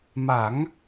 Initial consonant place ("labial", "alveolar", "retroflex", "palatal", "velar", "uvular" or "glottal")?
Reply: labial